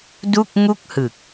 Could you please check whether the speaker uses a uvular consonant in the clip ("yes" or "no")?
no